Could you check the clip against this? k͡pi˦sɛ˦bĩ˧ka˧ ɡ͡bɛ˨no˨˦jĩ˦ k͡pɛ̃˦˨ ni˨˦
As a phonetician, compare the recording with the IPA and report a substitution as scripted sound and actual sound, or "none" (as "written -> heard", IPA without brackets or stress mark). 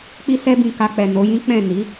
ɡ͡b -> k͡p